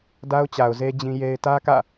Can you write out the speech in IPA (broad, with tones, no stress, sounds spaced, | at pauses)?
d a˦ ʊ̯ t͡ɕ a˨ ʊ̯ z e˦ d͡ʑ ĩ˦ j e˦ ɪ̯ t ä˦ k ä̰˦˨